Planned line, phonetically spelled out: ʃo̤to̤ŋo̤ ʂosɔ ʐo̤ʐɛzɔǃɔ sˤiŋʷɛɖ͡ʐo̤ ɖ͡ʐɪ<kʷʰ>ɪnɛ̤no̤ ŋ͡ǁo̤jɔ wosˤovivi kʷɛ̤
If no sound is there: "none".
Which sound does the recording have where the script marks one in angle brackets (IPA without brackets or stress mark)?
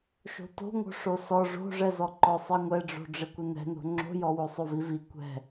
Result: kʷ